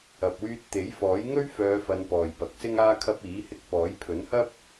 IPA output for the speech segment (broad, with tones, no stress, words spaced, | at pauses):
ɐ˨p̚wyː˧t̚ t̪e˨˥jfɔː˨˥j ŋɵ˥ɥfœː˨˧fɐ˨˧n pɔː˨jpɐ˨˥k̚sɪ˥ŋaː˥ kʰɐ˧p̚iː˨˥hɪ˧k̚ pɔː˨˥jpʰɵ˨˥nhɐ˥p̚